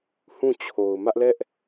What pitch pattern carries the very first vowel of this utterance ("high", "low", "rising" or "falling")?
falling